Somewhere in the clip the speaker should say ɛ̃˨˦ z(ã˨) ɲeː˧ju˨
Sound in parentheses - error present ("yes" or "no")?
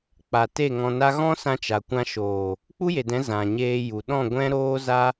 no